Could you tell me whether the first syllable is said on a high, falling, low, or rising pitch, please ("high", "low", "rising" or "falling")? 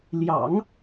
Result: low